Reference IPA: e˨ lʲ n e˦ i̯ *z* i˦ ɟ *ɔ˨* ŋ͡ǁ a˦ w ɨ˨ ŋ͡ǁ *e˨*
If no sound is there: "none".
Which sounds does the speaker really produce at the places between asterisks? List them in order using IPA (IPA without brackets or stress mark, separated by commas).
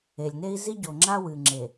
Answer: z, o˨, e˨